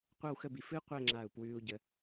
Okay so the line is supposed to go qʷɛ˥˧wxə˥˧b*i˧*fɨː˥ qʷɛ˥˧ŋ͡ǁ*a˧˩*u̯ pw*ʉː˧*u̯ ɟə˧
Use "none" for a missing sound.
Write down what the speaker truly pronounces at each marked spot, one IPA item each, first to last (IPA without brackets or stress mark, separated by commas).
i˧, a˧˩, ʉː˧